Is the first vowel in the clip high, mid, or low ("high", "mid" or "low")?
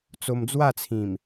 mid